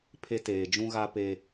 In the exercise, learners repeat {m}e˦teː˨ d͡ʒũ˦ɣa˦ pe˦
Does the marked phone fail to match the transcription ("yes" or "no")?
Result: yes